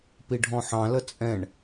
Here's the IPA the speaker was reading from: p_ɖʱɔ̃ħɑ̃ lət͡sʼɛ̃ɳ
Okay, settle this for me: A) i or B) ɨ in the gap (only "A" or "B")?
A